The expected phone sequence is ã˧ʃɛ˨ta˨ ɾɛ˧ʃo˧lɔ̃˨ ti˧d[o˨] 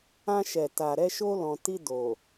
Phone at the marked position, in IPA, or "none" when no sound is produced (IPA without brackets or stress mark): o˨